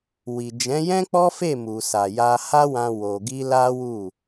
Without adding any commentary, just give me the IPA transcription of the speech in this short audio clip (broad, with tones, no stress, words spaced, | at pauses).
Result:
wi˨d͡ʒɛ̃˨˦jɛ̃˦ k͡pɔ˦fe˦˨mu˨sa˨ ja˧ha˦wã˧ wo˧ ɡi˦la˦wu˦˨